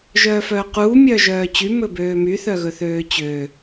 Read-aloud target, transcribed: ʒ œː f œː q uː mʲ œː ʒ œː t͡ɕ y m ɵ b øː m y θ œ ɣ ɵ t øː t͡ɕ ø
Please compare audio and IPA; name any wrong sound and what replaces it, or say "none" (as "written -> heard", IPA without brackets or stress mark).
t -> θ